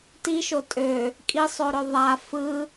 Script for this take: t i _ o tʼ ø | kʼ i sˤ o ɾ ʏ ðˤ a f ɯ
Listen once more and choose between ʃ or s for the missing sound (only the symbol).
ʃ